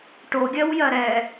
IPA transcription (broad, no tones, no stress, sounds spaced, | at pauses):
ʈ o ɡʲ ɜ w j ɜ ɾ ɛ